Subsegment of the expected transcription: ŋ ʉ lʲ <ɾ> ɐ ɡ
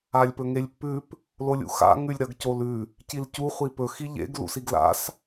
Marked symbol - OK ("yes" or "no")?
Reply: yes